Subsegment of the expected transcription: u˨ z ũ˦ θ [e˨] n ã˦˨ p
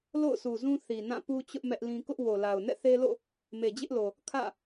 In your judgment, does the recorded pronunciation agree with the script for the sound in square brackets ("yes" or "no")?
no